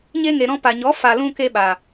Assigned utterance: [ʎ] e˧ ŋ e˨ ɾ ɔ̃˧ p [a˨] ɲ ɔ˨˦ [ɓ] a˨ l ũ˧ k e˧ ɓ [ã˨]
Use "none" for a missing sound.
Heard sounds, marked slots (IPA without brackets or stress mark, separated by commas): ɲ, a˨, f, a˨